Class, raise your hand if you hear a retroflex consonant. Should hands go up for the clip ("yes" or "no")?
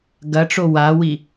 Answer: yes